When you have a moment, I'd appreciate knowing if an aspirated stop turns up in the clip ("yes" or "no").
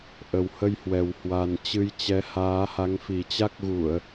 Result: no